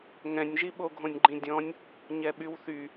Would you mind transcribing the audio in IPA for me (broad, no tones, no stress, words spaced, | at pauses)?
ŋɛ̃nʲʒiɓoɡʱõnʲ ɡ͡ǃĩdʲɔ̃nʲ | ɲɛɓywθy